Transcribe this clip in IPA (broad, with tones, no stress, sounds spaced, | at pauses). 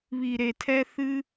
β i˨ ɾ e˨ tʰ ɛ˧ θ ɨ˧